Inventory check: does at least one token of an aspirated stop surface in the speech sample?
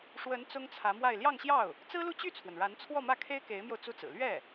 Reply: yes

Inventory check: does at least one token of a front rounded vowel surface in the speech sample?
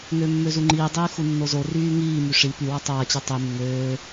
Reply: yes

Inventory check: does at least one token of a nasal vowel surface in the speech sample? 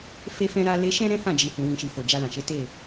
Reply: yes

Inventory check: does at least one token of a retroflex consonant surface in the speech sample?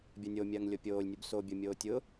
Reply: no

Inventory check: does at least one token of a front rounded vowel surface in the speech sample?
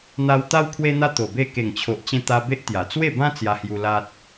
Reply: no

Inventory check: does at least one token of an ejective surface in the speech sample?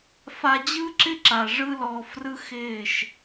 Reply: no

